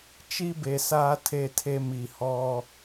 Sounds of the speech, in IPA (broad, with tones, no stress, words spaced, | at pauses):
t͡ʃi˦be˨saː˦ tʰe˦tʰe˦mi˨ hɔ˦